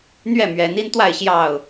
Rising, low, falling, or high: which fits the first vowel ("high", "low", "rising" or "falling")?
falling